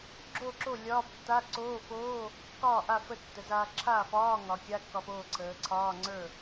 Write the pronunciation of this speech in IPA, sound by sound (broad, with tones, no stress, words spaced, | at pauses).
ɡ͡ǁo˥˩ǁo˥˩ lʲɒː˧˥˧b tːa˧˥˧ǀoː˧˥˧foː˧˥˧ | kɒː˥˩ʔa˥˩ fə˥˩tːə˩˧zaː˧ ǁʰaː˥˩fɒː˧˥˧ ŋɒ˩˧ kʲa˧˥˧kːɒ˧foː˥˩ǀʰəː˩˧ ǀʰɒː˧˥˧ŋ͡ǀə˞˥˩